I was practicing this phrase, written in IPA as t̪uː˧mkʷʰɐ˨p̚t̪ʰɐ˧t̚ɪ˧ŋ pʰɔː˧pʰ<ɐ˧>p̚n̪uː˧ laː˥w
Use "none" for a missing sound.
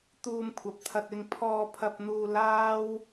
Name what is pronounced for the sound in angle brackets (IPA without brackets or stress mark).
ɐ˧